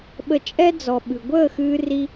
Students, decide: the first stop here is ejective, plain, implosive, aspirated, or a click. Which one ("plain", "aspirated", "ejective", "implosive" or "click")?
implosive